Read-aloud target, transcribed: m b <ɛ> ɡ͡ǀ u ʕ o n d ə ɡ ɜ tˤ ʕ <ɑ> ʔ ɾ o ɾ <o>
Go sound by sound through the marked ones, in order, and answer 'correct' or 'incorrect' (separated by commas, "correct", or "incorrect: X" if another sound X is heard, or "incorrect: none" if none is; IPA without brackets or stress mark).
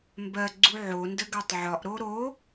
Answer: incorrect: ɜ, incorrect: ɒ, correct